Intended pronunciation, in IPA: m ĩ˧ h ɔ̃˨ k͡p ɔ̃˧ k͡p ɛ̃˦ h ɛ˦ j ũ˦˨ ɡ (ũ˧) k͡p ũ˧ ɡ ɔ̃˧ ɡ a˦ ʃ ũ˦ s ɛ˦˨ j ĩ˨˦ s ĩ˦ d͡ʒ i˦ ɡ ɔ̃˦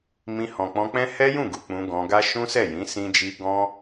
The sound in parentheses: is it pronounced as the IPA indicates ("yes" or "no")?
no